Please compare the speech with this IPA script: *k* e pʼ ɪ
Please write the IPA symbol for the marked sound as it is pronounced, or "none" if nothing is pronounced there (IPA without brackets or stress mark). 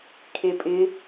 kʰ